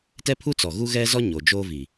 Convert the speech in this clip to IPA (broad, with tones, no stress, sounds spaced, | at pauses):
t ɛ˦ pʰ u˦ t͡s ɔ˨ ɣ u˦ ɣ ɛ˦ z ɔ˦ ɲ o˨ d͡ʒ oː˦ v i˨